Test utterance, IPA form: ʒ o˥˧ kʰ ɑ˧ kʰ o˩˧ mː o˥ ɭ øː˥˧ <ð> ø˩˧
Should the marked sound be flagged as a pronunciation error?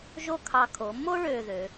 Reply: no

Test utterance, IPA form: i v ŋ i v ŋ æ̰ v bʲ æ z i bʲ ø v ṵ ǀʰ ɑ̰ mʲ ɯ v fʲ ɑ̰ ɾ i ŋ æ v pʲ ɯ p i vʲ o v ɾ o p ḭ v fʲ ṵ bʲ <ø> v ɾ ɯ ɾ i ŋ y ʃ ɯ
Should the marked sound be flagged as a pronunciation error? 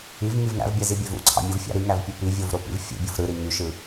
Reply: yes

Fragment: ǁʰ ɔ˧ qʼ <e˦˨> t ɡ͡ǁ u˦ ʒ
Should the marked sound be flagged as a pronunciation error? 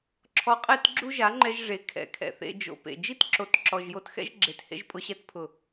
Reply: no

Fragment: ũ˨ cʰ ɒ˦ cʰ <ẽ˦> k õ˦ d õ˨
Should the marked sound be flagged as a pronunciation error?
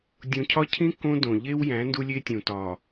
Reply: yes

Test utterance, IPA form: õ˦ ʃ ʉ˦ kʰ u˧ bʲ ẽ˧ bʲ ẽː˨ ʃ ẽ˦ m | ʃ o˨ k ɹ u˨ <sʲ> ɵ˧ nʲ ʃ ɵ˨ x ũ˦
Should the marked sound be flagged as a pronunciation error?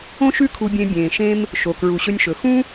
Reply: yes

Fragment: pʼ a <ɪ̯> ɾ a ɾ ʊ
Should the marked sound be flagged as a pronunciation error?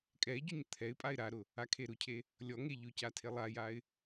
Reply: no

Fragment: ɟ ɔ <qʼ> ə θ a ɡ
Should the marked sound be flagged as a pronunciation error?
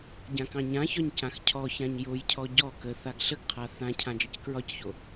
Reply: yes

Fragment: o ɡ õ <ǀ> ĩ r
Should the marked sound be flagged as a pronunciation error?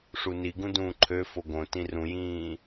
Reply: yes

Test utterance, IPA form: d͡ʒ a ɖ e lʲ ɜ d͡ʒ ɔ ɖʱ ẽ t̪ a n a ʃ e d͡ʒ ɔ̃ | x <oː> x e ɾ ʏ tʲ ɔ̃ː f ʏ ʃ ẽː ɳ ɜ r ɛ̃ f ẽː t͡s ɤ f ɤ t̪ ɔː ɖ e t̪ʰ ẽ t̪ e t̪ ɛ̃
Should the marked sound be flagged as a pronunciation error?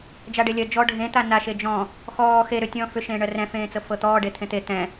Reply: yes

